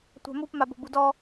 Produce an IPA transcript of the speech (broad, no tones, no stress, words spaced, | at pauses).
tʷa̤mup mabo̤budɔ